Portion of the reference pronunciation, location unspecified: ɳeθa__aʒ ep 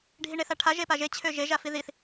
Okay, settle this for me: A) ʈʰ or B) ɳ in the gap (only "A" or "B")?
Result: A